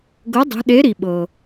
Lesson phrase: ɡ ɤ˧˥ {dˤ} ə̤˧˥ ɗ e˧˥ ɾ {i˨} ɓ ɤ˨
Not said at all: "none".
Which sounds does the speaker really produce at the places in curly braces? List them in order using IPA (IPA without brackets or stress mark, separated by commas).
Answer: dˤ, i˨